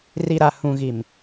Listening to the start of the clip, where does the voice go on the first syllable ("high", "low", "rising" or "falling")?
low